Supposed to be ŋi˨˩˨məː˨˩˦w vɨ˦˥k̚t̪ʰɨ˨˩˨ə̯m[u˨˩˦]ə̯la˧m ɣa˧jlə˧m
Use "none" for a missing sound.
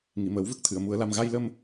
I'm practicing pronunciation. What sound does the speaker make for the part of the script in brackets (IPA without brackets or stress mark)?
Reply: u˨˩˦